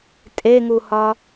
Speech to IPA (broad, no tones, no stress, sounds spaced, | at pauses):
tʼ e ŋ u h ɒ